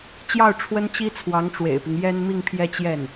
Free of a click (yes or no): yes